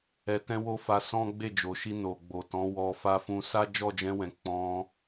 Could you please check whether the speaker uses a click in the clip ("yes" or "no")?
no